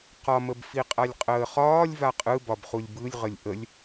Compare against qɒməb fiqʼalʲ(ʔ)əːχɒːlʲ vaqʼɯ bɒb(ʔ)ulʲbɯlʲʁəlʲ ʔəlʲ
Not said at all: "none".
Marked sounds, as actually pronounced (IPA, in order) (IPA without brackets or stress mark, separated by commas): qʼ, χ